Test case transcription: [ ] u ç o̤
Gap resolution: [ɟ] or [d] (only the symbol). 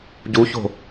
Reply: ɟ